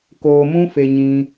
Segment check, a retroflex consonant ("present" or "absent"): absent